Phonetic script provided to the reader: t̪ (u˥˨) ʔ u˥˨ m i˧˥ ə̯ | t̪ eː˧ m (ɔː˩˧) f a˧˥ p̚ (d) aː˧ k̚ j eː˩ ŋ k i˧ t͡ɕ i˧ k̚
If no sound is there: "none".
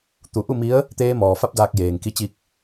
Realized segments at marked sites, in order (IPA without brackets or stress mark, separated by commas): u˧˩, ɔː˩, d